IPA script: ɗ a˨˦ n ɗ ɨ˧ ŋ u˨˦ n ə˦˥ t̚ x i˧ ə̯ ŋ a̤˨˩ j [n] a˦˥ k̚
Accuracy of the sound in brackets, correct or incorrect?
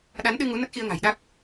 incorrect: ɗ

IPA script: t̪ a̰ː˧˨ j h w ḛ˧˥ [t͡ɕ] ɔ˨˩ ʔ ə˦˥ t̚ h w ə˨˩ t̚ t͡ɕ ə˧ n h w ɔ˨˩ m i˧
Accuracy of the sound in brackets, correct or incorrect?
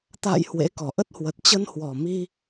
incorrect: k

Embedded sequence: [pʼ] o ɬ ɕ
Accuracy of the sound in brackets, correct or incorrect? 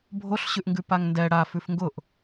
incorrect: bʱ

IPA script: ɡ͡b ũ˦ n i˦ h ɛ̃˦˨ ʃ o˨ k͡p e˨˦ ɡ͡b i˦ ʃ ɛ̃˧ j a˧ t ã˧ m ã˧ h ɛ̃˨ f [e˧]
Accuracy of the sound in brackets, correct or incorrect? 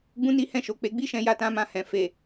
incorrect: e˨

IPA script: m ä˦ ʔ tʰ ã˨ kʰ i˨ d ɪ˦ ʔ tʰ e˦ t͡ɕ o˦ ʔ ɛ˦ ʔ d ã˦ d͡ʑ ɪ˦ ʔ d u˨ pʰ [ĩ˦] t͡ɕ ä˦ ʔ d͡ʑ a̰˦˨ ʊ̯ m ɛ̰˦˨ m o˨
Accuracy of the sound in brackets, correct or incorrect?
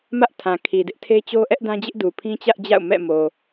correct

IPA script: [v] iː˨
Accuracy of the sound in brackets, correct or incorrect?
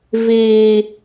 correct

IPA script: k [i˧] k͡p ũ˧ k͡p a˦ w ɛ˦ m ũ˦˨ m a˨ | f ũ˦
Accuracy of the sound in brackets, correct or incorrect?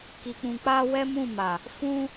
correct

